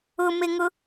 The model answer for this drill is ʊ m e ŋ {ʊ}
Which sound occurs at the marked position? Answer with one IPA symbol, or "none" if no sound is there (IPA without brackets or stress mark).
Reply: ʊ